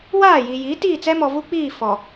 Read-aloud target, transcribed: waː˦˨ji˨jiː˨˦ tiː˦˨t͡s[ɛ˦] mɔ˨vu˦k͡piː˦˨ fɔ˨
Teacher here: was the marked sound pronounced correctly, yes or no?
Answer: yes